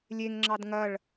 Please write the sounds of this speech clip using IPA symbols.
lʲ e ŋ ŋ͡ǁ ɑ d ŋ ɐ ɭ

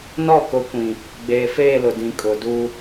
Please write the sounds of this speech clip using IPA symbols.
n ɔ˦˨ k ʊ˨˦ kʷ ĩ˨ | ɡ͡b eː˨ f eː˦˨ l ʊ˨ d ĩ˨ kʼ ʊ˨ d u˦

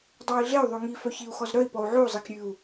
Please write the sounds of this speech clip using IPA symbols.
dˤ ɑ i̯ ɮ e y̯ ðˤ ʉ ŋ i f œ ç i u̯ x ɔ z ɾ œ i̯ p ɔ u̯ ʕ ʉ u̯ zˤ i k ɾʲ ʉ u̯

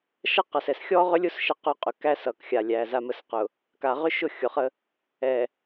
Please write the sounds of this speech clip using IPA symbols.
ʃ ʌ˦ q ʌ˨ s ɛ˨ s xʲ ɔ˦ ʁ ʏ˦ lʲ ʊ˦ s ʃ ə˦ q ʊ˦ qʼ ʏ˨ k æ˦ s ʌ˨ k xʲ a˨ lʲ æ˨ z a˨ m ə˨ s q ʊ˨ | k a˨ ʁ ʏ˦ ʃ ʊ˦˨ xʲ ʊ˨ χ ə˦ | ɛ˨

